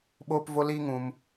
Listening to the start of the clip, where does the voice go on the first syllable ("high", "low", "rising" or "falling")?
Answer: high